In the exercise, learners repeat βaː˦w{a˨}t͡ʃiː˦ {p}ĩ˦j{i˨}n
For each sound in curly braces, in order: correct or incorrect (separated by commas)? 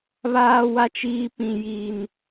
incorrect, correct, incorrect